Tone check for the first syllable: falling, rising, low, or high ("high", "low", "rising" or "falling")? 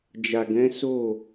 low